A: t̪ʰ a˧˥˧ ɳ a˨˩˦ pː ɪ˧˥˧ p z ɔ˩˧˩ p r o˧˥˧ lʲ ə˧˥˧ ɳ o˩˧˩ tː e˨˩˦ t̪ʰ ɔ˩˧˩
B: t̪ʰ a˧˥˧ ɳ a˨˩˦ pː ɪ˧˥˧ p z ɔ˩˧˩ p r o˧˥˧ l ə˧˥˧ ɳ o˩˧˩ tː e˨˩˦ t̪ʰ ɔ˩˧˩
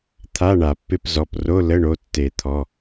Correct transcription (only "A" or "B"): B